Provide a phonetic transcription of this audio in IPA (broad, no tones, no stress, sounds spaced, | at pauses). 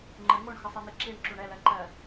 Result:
ŋ͡ǃ ə ŋ o ɳ x ə sˤ i n̪ i ǁ i ɳ ǁ u ɳ ɛ l ɜ ǃ ɜ